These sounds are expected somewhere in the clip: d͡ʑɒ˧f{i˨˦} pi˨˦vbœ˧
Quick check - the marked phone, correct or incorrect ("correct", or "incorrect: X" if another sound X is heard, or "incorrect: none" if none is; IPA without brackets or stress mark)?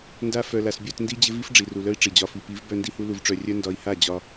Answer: incorrect: i˨